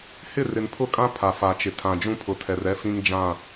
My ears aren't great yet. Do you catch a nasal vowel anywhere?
yes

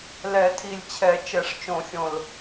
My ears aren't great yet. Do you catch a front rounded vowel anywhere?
no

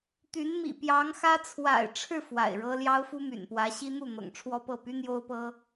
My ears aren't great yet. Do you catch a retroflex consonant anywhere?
yes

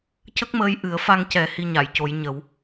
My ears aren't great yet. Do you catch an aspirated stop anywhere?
no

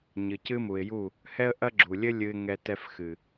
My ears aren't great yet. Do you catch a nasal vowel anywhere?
no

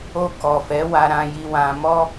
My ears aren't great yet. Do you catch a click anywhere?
no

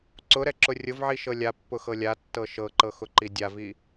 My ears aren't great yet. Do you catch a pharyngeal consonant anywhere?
yes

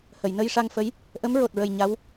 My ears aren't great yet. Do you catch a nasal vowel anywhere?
no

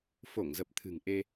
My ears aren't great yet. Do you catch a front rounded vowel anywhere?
no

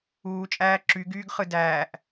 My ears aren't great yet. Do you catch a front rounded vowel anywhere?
yes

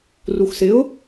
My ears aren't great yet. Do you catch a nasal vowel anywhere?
no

